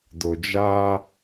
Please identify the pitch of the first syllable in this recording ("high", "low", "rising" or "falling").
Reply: low